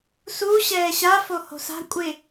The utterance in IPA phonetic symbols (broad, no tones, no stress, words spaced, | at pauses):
su ɕɛːɕa foho̤sa̤ kʷʼɪ